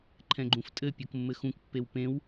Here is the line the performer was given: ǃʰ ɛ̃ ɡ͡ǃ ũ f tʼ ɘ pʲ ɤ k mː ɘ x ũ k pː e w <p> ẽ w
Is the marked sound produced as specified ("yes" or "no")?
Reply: yes